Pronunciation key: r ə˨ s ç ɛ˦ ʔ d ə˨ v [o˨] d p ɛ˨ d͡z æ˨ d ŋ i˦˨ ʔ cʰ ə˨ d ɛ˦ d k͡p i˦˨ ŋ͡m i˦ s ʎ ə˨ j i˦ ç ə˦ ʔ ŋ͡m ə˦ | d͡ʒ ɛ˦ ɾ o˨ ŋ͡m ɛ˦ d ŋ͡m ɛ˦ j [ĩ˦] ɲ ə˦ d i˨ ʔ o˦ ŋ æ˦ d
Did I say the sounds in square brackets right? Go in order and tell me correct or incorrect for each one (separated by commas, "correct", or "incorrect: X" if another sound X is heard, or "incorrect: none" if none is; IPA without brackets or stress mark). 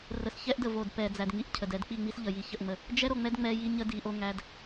correct, incorrect: i˦